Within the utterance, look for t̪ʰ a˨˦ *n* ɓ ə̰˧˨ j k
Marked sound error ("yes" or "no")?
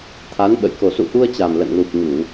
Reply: no